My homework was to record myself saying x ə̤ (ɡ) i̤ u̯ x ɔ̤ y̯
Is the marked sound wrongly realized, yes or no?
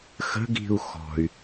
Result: no